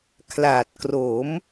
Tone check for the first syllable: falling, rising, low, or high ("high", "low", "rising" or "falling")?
low